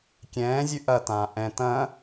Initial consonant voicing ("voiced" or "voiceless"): voiceless